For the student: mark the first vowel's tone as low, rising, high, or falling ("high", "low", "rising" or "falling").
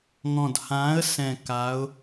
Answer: low